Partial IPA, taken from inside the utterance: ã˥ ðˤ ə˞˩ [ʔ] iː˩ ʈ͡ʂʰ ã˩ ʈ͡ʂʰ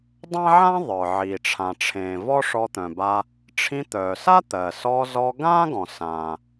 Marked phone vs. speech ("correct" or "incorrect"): incorrect